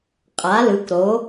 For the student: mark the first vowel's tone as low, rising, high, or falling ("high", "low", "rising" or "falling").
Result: rising